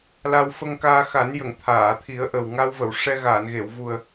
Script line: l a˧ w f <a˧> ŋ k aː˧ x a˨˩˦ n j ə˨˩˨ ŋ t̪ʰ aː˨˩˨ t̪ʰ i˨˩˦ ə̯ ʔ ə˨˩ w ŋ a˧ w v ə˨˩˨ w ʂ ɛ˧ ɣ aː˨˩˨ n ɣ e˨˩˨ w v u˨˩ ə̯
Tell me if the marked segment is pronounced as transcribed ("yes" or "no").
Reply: no